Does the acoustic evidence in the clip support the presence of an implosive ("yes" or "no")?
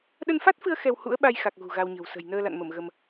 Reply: yes